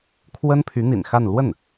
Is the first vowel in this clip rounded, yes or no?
no